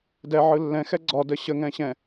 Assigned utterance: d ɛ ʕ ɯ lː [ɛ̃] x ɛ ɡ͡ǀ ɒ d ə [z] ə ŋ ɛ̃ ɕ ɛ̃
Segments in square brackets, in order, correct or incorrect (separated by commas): correct, incorrect